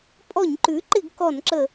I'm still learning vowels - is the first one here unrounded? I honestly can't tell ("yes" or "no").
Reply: no